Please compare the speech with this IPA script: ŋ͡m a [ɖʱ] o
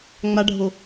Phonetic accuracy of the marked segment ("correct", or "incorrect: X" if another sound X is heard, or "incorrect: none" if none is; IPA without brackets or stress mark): correct